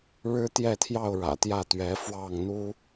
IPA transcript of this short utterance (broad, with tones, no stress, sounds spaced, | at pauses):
ɻ ɻ̩˦ t̪ j ɛ˥˨ t̪ʰ j ɑ˥˨ ʊ̯ ɻ ä̰˨˩ t̪ j ä˥˨ t̪ ɥ ɛ˨˦ f w ɑ˥˨ ŋ n̪ u˦